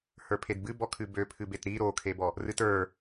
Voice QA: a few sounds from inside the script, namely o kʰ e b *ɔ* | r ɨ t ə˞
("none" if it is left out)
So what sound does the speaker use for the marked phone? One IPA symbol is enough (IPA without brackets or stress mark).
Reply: ɔ